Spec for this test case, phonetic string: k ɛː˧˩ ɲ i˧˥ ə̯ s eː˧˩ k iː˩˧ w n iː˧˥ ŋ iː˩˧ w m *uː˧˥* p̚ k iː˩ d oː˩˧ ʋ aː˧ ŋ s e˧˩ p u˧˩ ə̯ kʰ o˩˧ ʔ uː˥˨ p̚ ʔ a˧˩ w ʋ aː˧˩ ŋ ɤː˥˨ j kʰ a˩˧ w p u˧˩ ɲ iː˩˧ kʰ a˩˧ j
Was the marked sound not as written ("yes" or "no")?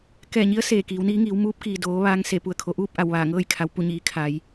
no